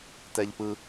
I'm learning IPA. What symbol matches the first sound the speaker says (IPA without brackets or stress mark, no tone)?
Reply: t